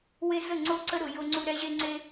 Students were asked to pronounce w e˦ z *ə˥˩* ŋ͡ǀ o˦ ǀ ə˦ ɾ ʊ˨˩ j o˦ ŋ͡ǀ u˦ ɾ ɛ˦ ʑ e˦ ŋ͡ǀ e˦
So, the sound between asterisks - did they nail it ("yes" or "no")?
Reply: yes